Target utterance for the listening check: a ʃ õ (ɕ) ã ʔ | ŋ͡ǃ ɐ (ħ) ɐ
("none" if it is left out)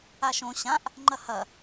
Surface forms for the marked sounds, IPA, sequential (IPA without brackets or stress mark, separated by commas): ɕ, h